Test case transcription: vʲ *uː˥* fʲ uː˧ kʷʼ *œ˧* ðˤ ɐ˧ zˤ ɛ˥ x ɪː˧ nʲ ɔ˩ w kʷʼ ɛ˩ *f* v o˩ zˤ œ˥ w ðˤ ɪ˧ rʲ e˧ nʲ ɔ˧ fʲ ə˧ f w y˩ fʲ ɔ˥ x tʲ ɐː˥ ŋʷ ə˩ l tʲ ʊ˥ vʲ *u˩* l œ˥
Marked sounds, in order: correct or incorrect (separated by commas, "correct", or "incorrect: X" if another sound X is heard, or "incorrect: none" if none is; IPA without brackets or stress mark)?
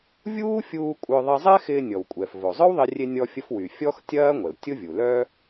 correct, correct, correct, correct